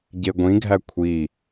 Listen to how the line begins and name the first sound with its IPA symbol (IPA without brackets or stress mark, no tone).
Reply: ɟ